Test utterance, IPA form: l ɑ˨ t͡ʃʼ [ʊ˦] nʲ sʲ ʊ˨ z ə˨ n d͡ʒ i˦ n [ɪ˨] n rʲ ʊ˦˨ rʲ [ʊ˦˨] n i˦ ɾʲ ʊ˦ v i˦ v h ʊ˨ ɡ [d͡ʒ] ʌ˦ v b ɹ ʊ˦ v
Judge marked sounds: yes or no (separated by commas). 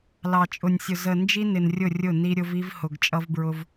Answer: no, yes, yes, no